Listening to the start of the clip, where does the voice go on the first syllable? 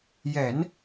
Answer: low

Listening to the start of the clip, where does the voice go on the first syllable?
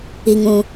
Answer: low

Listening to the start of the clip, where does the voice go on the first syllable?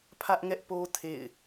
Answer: high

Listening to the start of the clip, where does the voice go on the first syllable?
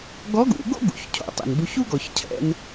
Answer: rising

